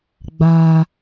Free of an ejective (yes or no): yes